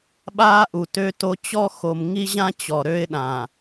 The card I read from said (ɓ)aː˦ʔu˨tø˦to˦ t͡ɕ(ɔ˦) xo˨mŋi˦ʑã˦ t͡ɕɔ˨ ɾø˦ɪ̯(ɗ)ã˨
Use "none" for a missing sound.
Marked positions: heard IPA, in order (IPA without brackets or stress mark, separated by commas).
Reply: ɓ, ɔ˦, ɗ